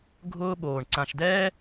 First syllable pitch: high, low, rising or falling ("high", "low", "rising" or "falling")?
high